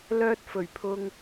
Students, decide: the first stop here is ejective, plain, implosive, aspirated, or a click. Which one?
plain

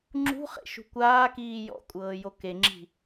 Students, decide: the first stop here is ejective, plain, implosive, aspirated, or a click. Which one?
click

